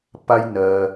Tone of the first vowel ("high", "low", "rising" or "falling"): high